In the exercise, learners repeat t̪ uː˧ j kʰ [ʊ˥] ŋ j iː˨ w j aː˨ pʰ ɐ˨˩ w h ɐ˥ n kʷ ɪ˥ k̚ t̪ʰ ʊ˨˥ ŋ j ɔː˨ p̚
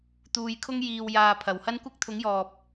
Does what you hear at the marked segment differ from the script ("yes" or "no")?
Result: no